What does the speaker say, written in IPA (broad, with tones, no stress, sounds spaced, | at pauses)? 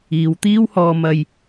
iː˨˧ w t̪ iː˥ w h ɔː˧ m ɐ˧ j